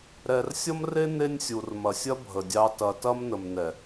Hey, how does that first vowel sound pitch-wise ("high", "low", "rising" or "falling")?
low